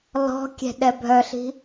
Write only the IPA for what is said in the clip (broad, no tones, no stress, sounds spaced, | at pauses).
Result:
l ɔ̤ kʲ ɛ̤ ɗ ɛ bʱ œ ɬ i̤